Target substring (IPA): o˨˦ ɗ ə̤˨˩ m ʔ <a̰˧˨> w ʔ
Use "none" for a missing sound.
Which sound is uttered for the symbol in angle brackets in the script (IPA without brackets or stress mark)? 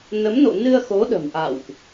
a̰˧˨